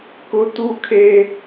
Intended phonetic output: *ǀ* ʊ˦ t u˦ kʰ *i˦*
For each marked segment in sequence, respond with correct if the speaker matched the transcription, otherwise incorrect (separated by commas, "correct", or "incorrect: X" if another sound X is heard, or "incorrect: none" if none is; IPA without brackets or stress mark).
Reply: incorrect: k, incorrect: e˦